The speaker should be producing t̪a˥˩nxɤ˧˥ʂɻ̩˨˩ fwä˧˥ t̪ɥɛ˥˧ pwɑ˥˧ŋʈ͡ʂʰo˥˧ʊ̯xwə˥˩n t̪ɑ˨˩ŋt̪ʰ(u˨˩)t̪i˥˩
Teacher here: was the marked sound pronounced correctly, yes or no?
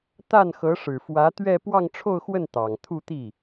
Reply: no